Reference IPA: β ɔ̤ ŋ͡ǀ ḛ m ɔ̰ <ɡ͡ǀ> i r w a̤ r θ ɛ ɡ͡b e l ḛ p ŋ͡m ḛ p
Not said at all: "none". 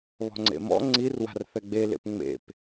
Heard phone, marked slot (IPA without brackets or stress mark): ŋ͡ǀ